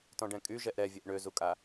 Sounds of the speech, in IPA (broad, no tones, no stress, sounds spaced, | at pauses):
t ɔ̃ ɖ ɛ̃ kʼ y ʒ ɛ ʔ ɾ ɛ vʲ ɛ ʔ ɳ ø z u kʼ a